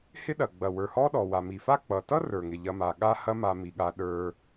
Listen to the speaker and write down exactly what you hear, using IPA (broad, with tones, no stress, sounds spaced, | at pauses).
h ɪ˦ ɗ ɐ˩ ɡ͡b ɐ˩ w ə˞˩ h ɔ˦ ɗ ɔ˩ w a˩ m i˩ f a˦ k͡p ʌ˩ t ʌ˥ r ə˞˩ ŋ ɪ˩ ʎ ɐ˨ m a˩ ɠ a˦ h ɐ˦ m a˨ m i˩ ɠ a˨ ɗ ə˞˨